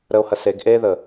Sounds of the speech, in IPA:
ɾəo̯hɐ seɡ ʔeðə

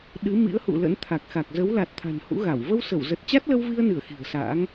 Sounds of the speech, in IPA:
ɗɨ˨˦ mḭ˧˥ə̯hṵ˧˨lə̰˧˥n t̪ʰa˨˩k̚xa˨˩k̚ zə˨˦wla˨˩t̚ t̪ʰa̤˨˩nhṵ˧˥ɣa˧˩w və˧wsə˧˩wzə˨˩t̚ t͡ɕa˦˥t̚lə˧wvi˧ə̯nɨ˧˩ə̯ xi̤˨˩ə̯sa̰ː˧˥ŋ

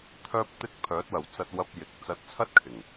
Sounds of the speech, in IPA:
t̪ʰœː˥p̚t̪ɪ˥k̚ pʰœː˨˥t̚wɐ˨˩wt͡sɐ˧t̚wɐ˧p̚ jɪ˨˥k̚ t͡sɐ˧t̚t͡sʰɐ˥t̚ kʰɪ˨˩ŋ

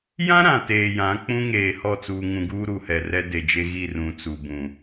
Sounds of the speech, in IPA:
jã˦ ɾã˨teː˨jã˨˦ k͡pũ˦ŋeː˨ hɔ˦˨t͡suː˨ŋũ˨ɡuː˦ ɾu˨hɛ˨ rɛ˦de˨d͡ʒe˦ ɣi˦˨rũ˨ t͡su˨bũ˨

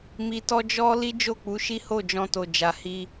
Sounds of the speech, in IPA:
mi˧tɔ˦ d͡ʒɔ˦ li˦d͡ʒo˦˨k͡pu˨˦ʃi˦ ho˦˨d͡ʒɔ̃˧to˨ d͡ʒa˨hi˧

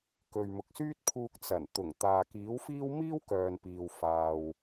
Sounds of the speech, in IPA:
kɵ˨ɥmʊ˨k̚syː˥t̚pʰuː˧k̚ t͡sɐ˨˩nt̪ʊ˨˩ŋ t̪aː˨kiː˨˥wfiː˥w miː˥wkœː˨npiː˨w faː˧w

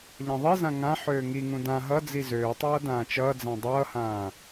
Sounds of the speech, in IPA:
ʎãðˤizã ŋã ħøːŋiŋũ dã ɦʌ d͡zizøːtˤʌː dãːt͡ʃʌːd͡zã dˤʌːhãː

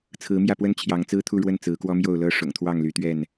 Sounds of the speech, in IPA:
t͡sʰɹ̩˨˦mjä˥˨pwə˦n t͡ɕʰjɑ˨˦ŋt͡sɹ̩˦t̪ʰu˥˨ɻwə˥˨n t͡sɹ̩˨˦kwɔ˦mjo˥˨ʊ̯lɤ˦ ʂʊ̰˨˩ŋt̪ʰwɑ˥˨ŋly˨˦t̪ɥɛ˥˨n

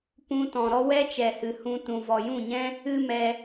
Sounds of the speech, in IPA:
pũ˧tɔ̃˨ ɾɔ˦wɛ˦ t͡ʃɛ˨hɨ˨hũ˧tũ˨ vɔ˨jũ˦˨ɲɛ̃˦ | ɨ˦ mɛ˧

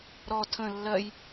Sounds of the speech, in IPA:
ɾɔ tʰə̃ lːɜj

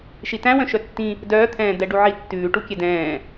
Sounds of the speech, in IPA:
ʃitæ̃wœ̃ ʃœtːĩ | dœːt̪ʰɛ̃ːd̪ɛ ɖuʕitːʉːʈu kʲɛdɛ̃ː

